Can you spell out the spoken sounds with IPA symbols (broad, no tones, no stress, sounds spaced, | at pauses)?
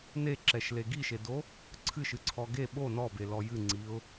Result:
n e ǁ ɛ ʃ l e ɡ i ʃ e d o | ǀʰ ɨ ʃ ɨ ǀʰ ɔ ɡ e ɓ o n ɔ b e l ɔ j ɨ ŋ͡ǀ i ʊ̯